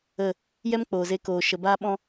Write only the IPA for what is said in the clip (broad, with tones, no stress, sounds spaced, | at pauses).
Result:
ə˦˨ | j ɛ˦ m k͡p oː˨ z e˧ k oː˨ ʃ ə˨ b aː˦ ɓ ɔ̃˦